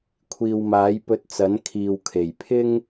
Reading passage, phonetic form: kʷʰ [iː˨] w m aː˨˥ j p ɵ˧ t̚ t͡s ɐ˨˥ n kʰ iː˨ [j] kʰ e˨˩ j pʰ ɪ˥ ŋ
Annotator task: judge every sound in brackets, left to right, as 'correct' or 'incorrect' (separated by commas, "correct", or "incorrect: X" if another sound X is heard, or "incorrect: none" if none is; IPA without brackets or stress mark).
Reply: correct, incorrect: w